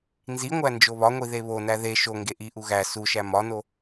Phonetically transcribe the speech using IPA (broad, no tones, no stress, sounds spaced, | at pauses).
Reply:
n z i ŋʷ æ n d͡ʒ o β ɒ ŋʷ i ð e β o n æ ð e ʃ o ŋ ɡ e ʔ i ʔ u ɣ æ s u ʃ æ m ɒ n o